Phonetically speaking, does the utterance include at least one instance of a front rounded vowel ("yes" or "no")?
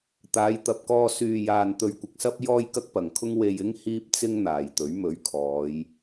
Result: yes